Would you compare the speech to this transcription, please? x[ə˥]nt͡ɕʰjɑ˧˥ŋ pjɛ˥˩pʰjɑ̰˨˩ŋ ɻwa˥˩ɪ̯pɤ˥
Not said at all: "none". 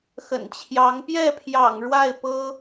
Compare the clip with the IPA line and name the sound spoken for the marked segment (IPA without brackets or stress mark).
ə̰˨˩